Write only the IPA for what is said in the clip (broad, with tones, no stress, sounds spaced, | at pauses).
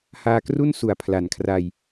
h aː˧ k r u˥˩ n s u˨˩ a̯ pʰ l a˩˦ n kʰ r a˧ j